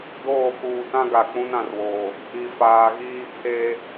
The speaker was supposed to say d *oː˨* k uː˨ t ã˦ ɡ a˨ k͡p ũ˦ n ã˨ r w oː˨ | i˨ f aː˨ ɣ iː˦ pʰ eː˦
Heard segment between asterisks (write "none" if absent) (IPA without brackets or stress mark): oː˦˨